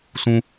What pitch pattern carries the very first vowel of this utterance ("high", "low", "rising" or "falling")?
high